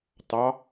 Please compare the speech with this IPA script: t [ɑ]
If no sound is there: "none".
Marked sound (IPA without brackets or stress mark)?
ɑ